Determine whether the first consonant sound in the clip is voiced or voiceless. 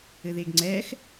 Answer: voiced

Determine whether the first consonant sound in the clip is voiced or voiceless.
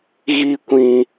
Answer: voiced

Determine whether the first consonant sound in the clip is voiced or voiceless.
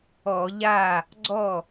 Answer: voiced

